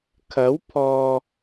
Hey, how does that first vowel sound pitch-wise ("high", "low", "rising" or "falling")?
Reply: rising